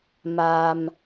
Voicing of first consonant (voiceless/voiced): voiced